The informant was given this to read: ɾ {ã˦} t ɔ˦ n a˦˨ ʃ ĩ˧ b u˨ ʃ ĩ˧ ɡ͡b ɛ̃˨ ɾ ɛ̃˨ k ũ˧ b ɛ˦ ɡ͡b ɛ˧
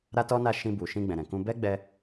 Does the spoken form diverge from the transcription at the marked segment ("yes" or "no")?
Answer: yes